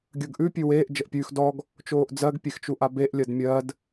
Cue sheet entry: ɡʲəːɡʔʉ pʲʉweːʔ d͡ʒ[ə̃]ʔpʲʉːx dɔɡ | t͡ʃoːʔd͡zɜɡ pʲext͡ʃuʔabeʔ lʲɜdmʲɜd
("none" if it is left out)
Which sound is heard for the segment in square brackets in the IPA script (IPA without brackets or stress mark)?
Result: ə